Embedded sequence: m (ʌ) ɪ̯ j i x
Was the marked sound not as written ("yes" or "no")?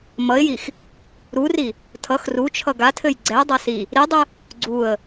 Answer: no